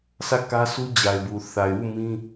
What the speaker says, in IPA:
sʰ ä˦˨ k ä˦ s u˦ d͡ʑ a˨ ɪ̯ b u˨ θ a˨ ɪ̯ w u˦˨ m ĩ˦

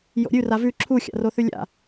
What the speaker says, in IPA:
j o̰ ɾʲ ʉ r a v ʉ ǁʰ u xʲ a̰ r o θ ʉ lʲ a̰

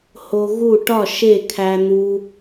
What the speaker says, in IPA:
h o˧ ɣ u˥˨ ʈ ɒ˥˨ ʃ e˥˨ kʰ æ˧ n̪ u˧

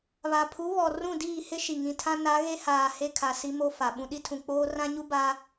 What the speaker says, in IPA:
β a˨ pʰ u˨˦ β ɔ˨ r ũ˦˨ d iː˦˨ h ɪ˦ ʃ i˨ ŋ ĩ˨ tʰ ã˦ n a˨˦ ɣ e˦ h aː˨ h e˦ kʰ a˨ s i˦ m o˦ f a˨ ɓ ũ˨ ɗ i˦ tʰ ũ˨ k͡p oː˦ r ã˦ ɲ u˦ b a˦

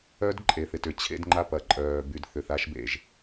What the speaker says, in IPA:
œ˦ d ǃʼ e˨ θ ɪ˨ t ʏ˨ t͡ɕʰ ḛ˦ d ŋ͡ǃ a˦ p ɐ˨ ǃʼ œː˨ b y˨ d θ ʏ˨ θ a˦ ʃ b ḛ˨ ʒ

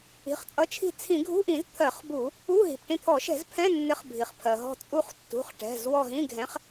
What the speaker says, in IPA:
i̤˩˧˩ χ t͡sʼ ʌ˨˥ t͡ʃʰ i̤˦˨ t͡sʰ ĩ˧˩˧ ɡʱ ṳ˧˥˧ ʔ ĩ˧˩˧ z t̪ʰ ɜ˧˩˧ χ b u˧˩˧ | u˧˥˧ ɦ i̤˩ p ʈ ĩ˦˨ t̪ʰ ɔ˧˩˧ ʃ ɛ̤˧˩˧ z pʰ ɛ̃˧˥˧ nː ɪ˨˥ χ bʱ i˩ χ pʰ ɜ˩ ɦ ɔ̤˦˨ t͡sʼ u˦˨ χ tː ṳ˩˧˩ χ ʈ ɛ̤˩˧˩ z w ɔ˦˨ ɦ ĩ˧˥˧ ɡʱ ɛ̃˨˥ χ

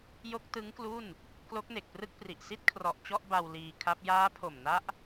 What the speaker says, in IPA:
j o˦˥ k̚ t ɯ˦˥ ŋ k l u˥˩ n | k l o˦˥ k̚ n e˨˩ k̚ p r ɯ˥˩ k̚ p r i˨˩ ʔ s i˥˩ t̚ kʰ r ɔ˨˩ ʔ t͡ɕ ɔ˥˩ ʔ b a˧ w l iː˧ kʰ a˦˥ p̚ j aː˦˥ pʰ o˨˩ m n a˦˥ ʔ

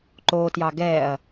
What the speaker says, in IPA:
ǃ oː t j ɑ ɡ ɛː ɐ̯

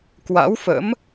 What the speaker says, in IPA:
k w a̰˧˥ w f ə̰˧˥ m

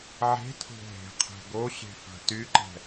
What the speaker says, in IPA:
ʕ e̤ tʰ o̤ ɦ e̤ qʰ ɛ̤ ɡ o ɕ e̤ f a̤ t y ǃ ɛ̤

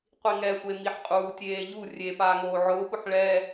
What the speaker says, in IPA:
qʷ i ŋ ɛ sʷ e m i ħ qʼ uː tʲ eː ʎ u rʲ e p aː ŋ oː ʕ ʊː p ʊ ħ ɭ ɛ

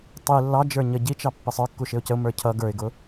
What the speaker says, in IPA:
tˤ i lː ɑ d͡ʒ ə˞ ɲ ə ɟ i t͡ʃ ɑ pː ɪ sˤ ə˞ kː u ʃ ɪ ʊ̯ c ə ʊ̯ m ə˞ cʰ ʌ ɡ ə˞ ɪ̯ ɡ ʊ

